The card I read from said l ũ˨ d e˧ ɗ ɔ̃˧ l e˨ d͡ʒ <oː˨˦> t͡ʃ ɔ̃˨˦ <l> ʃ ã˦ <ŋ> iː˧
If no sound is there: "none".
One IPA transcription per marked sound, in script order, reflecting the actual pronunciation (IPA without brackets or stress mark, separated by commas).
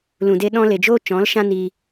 oː˦, l, n